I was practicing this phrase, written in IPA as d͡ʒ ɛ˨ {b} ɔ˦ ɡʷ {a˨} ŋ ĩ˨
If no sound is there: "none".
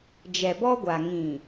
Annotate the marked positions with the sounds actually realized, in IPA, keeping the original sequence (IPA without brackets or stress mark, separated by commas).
b, a˨